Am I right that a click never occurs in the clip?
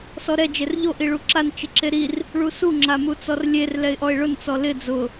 no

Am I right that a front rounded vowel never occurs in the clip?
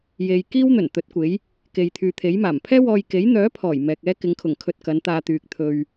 no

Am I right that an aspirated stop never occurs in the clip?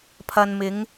no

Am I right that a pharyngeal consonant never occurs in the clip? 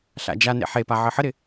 no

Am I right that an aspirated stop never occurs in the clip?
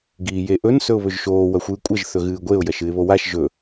yes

